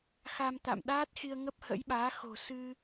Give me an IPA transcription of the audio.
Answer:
xa˧mt̪a̰˧˨mɗaː˦˥t̚xi˧ə̯ ŋə˦˥p̚hə̰˧˥jɓaː˨˦xo̤˨˩ sɨ˧

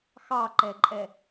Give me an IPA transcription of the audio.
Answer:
xɑǃɛǃʼɛ

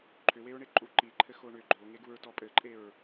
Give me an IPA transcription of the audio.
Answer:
ǃʰʏweɹ ɳeǃʼuǃiǃʰɘ xoɳʏ ɡ͡ǃoŋeɡuɹtɔ pʼɘǃʼeɹ

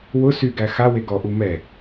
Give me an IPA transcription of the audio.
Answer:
wʊ syɡæ xawe ɡɔʔu mɛ

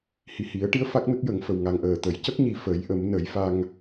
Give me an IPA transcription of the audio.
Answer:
hi˨˩hi˨˩˦ə̯ʈi˧ə̯ fa˦˥k̚nə˦˥k̚jə˨˩˦ŋfə˨˩w ŋa˨˩ŋʔəː˨˩t̪ə˨˩˦j cə˦˥k̚ɲi˨˩ fə˨˩˦jʔə˨˩˦mnə˨˩˦j fa˧ŋ

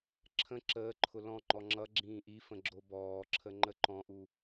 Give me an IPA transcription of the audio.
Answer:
ǁʰə̃ ǁəːǃʰʊ lɔ̃ŋ͡ǃɔ ŋ͡ǁʌ ɡ͡ǁĩːʔifə̃ ɡ͡ǁobɔːǁʰə ŋ͡ǃəǃɔ̃ʔu

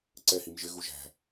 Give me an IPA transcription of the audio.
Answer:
ǀɛ himʒɪ ɣuʒæ̤

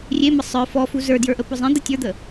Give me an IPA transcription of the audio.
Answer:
rʲemə sˤə˞ fɔfu zə˞djə˞ʔə pʊzˤẽ d̪ətʲə˞d̪ə

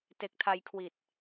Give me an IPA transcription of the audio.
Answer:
te˨˩k̚tʰa˧jkʰwi˨˩t̚

